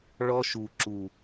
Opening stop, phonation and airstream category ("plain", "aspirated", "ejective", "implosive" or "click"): click